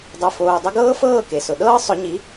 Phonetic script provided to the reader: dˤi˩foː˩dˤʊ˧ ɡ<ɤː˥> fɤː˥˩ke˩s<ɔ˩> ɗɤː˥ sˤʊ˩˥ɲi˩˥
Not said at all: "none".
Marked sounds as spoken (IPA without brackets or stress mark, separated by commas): ɤː˥, ʊ˩